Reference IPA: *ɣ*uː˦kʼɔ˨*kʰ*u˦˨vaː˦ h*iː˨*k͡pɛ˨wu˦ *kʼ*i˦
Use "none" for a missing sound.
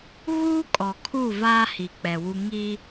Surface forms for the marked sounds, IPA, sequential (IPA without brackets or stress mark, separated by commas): ɣ, kʰ, i˨, ŋ